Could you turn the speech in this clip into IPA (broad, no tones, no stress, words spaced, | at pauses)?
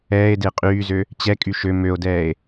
ɛːe̯de qʼyːzø | t͡ɕɛkʼy ʃø møo̯dɛːe̯